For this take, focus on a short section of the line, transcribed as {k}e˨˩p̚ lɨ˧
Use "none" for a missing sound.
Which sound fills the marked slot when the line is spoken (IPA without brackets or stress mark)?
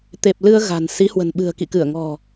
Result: t̪